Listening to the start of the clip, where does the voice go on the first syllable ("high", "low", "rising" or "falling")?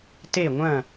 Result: falling